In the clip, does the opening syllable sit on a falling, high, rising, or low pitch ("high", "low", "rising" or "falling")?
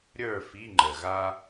falling